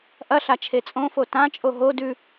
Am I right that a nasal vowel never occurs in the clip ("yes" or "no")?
no